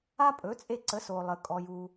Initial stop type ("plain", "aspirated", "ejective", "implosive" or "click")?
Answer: ejective